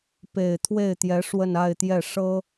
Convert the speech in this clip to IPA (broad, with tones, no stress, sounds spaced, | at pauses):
p e˨˩ ɪ̯ t̪ʰ w e˥˩ ɪ̯ t̪ j ɛ˧˥ ʂ w ə˥˧ n a˥˧ ɪ̯ t̪ j ɛ˥˩ ʂ ɤ˥